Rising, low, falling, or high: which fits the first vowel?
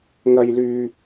low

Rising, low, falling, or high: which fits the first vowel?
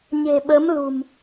low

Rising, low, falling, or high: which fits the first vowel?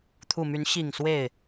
low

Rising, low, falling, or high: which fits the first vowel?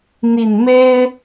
low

